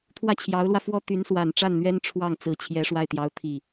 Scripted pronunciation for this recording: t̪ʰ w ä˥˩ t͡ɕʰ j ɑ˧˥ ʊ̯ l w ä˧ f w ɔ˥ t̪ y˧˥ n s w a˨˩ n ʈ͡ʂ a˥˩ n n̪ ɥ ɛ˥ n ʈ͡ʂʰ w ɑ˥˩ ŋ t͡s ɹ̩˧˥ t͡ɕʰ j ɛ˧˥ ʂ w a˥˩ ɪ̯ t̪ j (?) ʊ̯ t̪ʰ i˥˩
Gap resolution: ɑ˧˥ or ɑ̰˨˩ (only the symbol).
ɑ˧˥